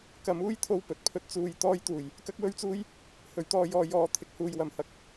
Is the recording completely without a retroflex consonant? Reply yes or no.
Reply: yes